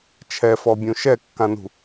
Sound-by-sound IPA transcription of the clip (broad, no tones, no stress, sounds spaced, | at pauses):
t͡ʃʰ ɛ f ɔ bʲ ũ ʃ ɛ kː ã n ṳ